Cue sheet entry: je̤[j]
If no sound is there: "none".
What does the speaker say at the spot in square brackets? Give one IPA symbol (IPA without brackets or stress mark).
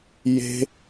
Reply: none